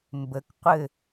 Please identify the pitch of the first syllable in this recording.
low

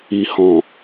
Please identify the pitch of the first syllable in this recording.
low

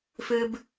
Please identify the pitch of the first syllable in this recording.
high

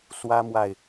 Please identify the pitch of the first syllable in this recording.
high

